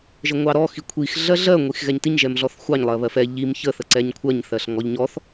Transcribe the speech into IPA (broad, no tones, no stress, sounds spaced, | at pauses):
ʒ ə ŋʷ ɑ ɾ ɔ x i kʷʰ i x ɮ ɜ ɮ ɜ ŋʷ i x ɣ ɛ ɲ t i ɲ ʒ ɛ m ɮ ɔ θ xʷ ɑ ɲ lˠ ɜ β ɜ f ɛ ʎ i m ç ə θ ə ǀ ɛ ɲ kʷʰ ɜ ɲ θ ɜ ɬ ŋ ɔ ʎ ɲ ɔ θ